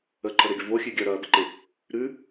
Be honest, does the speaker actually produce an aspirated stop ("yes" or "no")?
yes